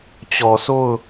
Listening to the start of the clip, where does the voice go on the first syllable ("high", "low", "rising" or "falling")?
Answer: low